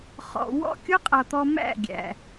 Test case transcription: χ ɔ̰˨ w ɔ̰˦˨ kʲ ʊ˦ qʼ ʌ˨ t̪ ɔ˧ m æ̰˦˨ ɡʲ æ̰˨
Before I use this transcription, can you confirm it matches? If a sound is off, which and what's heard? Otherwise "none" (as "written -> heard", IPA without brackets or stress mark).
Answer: none